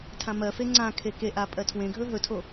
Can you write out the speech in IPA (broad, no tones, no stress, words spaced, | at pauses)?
tʰãmɜfe ŋ͡ǀãkʰe keʔa pʼɜtʰwẽɡʱɵ ɦɵtʰo